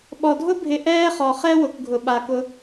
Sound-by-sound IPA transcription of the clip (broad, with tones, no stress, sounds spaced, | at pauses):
ɓ ɔ˨ dʱ ʊ˥ bʱ ɪ˨ ʔ ɛː˥ χ ɔ˩ χ ɛ˥ w ʊ˩ k ɡʱ ʊ˩ ɓ a˩ k ʊ˨